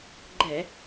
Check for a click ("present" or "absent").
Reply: present